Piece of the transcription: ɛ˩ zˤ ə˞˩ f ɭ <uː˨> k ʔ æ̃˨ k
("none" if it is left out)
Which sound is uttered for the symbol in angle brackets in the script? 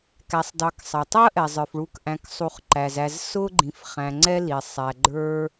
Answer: u˨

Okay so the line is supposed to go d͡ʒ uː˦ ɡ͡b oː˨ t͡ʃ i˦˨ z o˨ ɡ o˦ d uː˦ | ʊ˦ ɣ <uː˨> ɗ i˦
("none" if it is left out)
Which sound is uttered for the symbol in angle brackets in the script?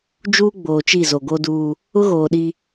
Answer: oː˨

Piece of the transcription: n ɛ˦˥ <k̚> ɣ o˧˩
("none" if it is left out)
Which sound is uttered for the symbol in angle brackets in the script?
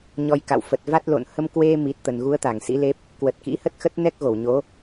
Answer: k̚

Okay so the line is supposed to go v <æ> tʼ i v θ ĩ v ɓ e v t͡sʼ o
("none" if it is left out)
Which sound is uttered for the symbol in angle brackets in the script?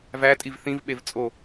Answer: æ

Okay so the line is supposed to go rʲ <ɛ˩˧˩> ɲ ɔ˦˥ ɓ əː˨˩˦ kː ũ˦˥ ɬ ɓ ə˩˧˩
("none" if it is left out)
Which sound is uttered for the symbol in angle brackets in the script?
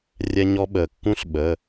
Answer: ɛ˦˥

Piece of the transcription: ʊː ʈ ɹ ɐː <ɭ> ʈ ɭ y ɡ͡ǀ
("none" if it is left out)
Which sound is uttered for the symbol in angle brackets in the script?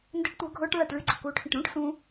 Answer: none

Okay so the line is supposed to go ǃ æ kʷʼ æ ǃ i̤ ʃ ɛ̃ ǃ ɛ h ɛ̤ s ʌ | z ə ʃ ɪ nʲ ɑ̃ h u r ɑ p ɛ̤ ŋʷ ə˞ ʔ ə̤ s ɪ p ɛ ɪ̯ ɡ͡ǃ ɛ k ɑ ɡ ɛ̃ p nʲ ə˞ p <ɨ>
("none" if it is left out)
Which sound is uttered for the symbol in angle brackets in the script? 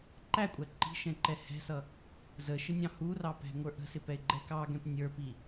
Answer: i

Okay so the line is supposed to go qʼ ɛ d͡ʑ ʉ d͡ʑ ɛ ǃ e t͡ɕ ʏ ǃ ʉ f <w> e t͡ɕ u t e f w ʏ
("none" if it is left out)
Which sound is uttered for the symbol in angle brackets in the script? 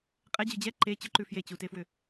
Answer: j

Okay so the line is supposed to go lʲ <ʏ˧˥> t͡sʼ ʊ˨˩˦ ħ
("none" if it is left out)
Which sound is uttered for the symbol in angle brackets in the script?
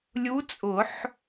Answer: u˧˥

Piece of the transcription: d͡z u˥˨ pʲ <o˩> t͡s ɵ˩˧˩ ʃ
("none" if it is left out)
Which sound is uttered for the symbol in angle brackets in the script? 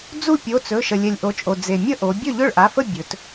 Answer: o˩˧˩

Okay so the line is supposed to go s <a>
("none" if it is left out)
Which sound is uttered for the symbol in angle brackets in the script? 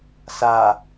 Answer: a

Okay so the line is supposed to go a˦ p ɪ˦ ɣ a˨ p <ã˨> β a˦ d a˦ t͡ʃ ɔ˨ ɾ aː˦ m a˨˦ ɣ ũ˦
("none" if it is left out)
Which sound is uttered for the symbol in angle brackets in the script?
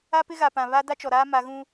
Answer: ã˨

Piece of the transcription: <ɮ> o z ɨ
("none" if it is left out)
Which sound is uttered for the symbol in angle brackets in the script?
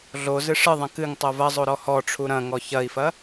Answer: ɮ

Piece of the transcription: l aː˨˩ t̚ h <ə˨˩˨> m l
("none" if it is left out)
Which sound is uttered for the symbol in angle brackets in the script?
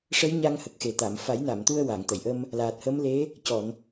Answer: ə˧˥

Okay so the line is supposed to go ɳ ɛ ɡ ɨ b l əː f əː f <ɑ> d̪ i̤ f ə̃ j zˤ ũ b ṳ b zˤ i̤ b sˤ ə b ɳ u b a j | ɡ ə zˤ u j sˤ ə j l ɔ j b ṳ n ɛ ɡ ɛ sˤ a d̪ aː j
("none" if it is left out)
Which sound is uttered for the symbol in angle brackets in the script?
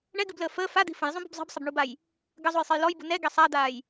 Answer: a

